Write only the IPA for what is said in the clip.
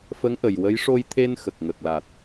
f ə˧˥ ŋ ʔ ə˨˩ j w ə˧˥ j ʂ o˧ j t̪ʰ e˧ n x ə˨˩ k̚ ŋ ə˨˩ k̚ l a˨˩ t̚

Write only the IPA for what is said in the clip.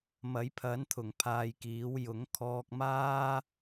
m ɐ˨˥ j pʰ ɐ˨˥ n t̪ʰ ʊ˨˩ ŋ pʰ aː˧ j k iː˨˥ w j ʊ˨˥ ŋ kʰ ɔː˧ k̚ m aː˥

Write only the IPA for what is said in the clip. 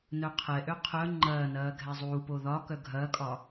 n œ qʰ ɛ ʔ ø qʰ œ ŋ͡ǃ ɐː n ɐː ɡʱ ɛ zˤ uː p o ð ɒ k œ ɡʱ ɐː kʼ ɒ

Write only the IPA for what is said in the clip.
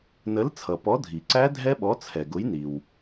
n ə˨˥ l t͡sʰ ʌ˩ p ɔ˨˥ dʱ i˩ ǀ æ˦˥ dʱ ɛ˦˥ ɓ ɔ˨˥ t͡sʰ ɛ˩ ɡ ʊ˨˥ j n i˩ w

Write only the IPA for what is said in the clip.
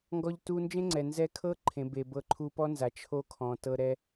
ŋ ɡ ɔ˧ ʎ t u˧ n d͡ʒ ẽ˦ ŋ͡ǀ ɛ˨ n z ɛ˧ kʰ ɤ˦ ǃʰ ẽ˨ b e˨ b ɤ˧ ǃʰ u˧ p ɔ˦ n z a˨ t͡ʃʰ o˦ kʰ ɔ̃˨ t ɤ˧ ɾ ɛ˧

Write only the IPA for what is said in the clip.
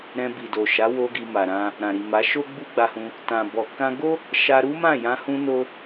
ɾ ɛ̃˧ b i˨ d o˨ ʃ a˨˦ w o˧ ɡ i˧ m a˨ ɾ ã˧ | ɾ ã˨ ɾ i˨ m a˨˦ ʃ o˦ ɡ͡b u˦ ɡ͡b a˧ h ũ˧ | t ã˨ b ɔ˨ k ã˧ ɡ o˦ | ʃ a˧ ɾ u˦ m ã˦˨ j ã˧ h ũ˦ n o˦

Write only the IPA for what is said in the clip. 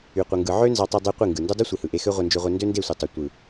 y˧ qʷ ɯ˧ ŋ ɡ ɯ˧ ʕ ø˦ n z ɑ˧ tˤ ɯ˧ dˤ y˧ qʷ i˦˨ ŋ ɡ ɯ˨ n d u˦ dˤ ɯ˦ sʷ i˨ h ɯ˨ ʔ e˧ x ø˦ ʁʷ e˧ n d͡ʒ ø˧ ʁʷ e˧ n d ø˦ n d e˦˨ sʷ e˨ tˤ u˨ tʷ ɯ˨

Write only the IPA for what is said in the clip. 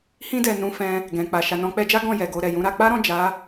h ĩ˧ d ɛ˨ n ũ˧ f ɛ̃˧ | ɡ ɛ̃˨ k͡p a˨ ʃ a˨ n ɔ̃˨˦ k͡p ɛ˧ d͡ʒ a˦ ɡ ɔ̃˦˨ j ɛ˨ ɡ o˧ ɾ ɛ˨ j ũ˨˦ ɾ a˧ k͡p a˦ ɾ ɔ̃˦˨ d͡ʒ a˨˦

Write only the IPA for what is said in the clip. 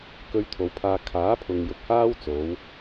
k ɵ˥ ɥ t̪ʰ o˨˧ w pʰ aː˥ kʰ aː˨˥ pʰ ʊ˨ ŋ j ʊ˨ k̚ h aː˥ w t͡s o˨˥ w

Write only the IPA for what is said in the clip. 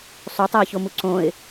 sˤ o tˤ æ ɪ̯ ç o m u ǀ õ ɪ̯

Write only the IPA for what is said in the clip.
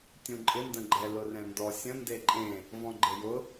tʲ ũ ǃʼ ɪ n d ə̃ ɡ͡ǃ ɛ l ʊ r ɛ̃ n d ɔ sʲ ə̃ n d e ǃʼ ẽ | v ɔ̃ ɡ͡ǃ e j ʊ

